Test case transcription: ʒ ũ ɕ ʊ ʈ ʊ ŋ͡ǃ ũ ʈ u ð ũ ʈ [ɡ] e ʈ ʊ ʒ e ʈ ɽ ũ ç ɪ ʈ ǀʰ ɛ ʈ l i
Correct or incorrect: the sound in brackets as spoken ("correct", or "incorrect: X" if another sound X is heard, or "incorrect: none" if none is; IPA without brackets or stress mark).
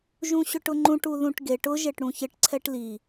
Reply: correct